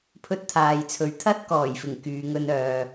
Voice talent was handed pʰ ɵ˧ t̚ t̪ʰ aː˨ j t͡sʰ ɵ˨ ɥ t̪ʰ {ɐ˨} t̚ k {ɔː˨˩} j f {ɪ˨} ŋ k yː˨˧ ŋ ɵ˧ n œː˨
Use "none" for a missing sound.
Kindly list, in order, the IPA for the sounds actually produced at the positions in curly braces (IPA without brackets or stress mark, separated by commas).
ɐ˥, ɔː˨˩, ɪ˨˩